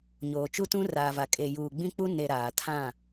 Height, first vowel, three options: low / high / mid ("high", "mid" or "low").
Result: mid